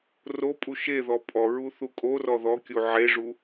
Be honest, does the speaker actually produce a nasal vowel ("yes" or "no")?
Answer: no